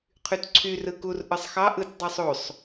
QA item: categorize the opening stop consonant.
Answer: aspirated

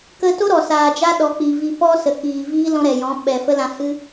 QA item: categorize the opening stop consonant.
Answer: plain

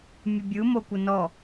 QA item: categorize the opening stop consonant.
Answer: plain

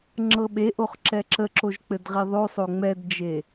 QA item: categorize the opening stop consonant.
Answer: click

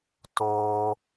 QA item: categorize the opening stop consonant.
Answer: plain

